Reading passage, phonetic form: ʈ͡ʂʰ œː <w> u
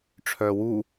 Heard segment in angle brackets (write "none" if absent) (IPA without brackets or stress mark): w